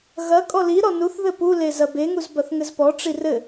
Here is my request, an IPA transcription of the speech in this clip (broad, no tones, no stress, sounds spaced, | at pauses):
ɣ ɐ kʼ ɔ l i ɾ ɔ n u θ ð ɘ p u l e z ɐ b e ŋ u z b ɐ θ ŋ ɘ z p ɔ ʈ͡ʂ i r ɘ